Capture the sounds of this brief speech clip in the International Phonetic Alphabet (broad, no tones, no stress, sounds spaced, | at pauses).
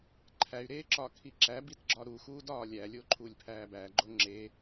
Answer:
ǃʰ æ y̯ ɾ eː ǁ ɒ kʰ i ǁ æ b i t ɡ͡ǁ ɒ ɾ u x uː d ɒː lʲ æ lʲ o ǃʰ u lʲ pʰ æː b æ ɡ͡ǃ o ŋ͡ǁ e